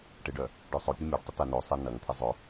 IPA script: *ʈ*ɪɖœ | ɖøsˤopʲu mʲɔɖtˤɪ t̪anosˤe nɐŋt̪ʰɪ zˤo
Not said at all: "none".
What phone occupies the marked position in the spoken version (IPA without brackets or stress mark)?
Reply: ʈ